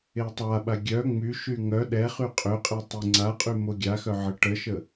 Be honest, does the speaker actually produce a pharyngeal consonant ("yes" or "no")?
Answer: yes